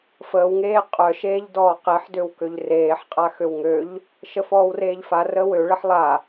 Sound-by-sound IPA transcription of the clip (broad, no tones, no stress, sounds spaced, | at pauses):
f əː w ŋ eː qʼ œ ʃ eː ʎ d ɔː q e ħ d ø w k ø ʎ r eː ħ qʼ a x ø w ŋ ø ʎ | ʃ ə f ɔː w r eː ʎ f a r əː w ø ɭ ə ħ lˠ a